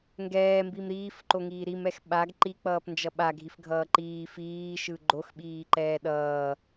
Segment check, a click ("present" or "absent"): present